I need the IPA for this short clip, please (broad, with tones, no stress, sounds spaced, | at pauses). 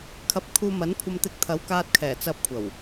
kʰ ɐ˧ p̚ kʰ uː˧ m ɐ˨˥ n kʷʰ ɐ˧ m t̪ ɪ˧ k̚ t̪ʰ ɐ˨˥ w k aː˧ t̚ kʰ ɛː˨˩ t͡s ɐ˨ p̚ kʷʰ ɐ˨˩ w